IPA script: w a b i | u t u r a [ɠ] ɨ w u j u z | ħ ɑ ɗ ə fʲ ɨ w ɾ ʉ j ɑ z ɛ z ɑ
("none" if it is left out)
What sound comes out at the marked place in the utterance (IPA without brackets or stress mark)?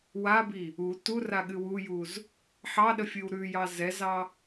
ɠ